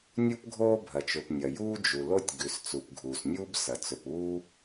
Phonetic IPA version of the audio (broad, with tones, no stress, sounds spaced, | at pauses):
nʲ u˥ p ɡʱ oː˥ bʱ ɐ˩ t͡ʃ ɵ˩ p nʲ ɐ˩ j uː˥ d͡ʒ u˩ l o˥ tʲ ɡ ʉ˩ s t͡s u˩ p ɡʱ uː˩ s nʲ uː˥ b s ɐ˩ t͡s ɵ˩ p uː˥